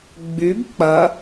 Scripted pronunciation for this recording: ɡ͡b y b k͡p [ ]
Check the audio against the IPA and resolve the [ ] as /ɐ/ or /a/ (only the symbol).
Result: ɐ